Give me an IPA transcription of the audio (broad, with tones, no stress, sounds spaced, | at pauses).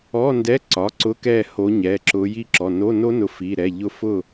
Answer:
ɔ˧˥˧ n d ɛ˧˥˧ ǀ ɒ˩˧˩ ǀ ʊ˧˥˧ k ɛ˦˨ h o˨˦ ɲ ɛ˩˧˩ ǁ ʊ˨˦ j i˦˨ ǁ ɔ˩˧˩ n o˧˥˧ n o˦˥ n ʊ˨˦ f i˩˧˩ ɾ ɛ˩˧˩ ʎ ʊ˦˥ f ʊ˦˨